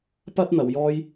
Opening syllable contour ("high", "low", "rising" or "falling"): high